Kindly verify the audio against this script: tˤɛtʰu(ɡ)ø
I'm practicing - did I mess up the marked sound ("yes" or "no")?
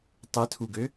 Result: no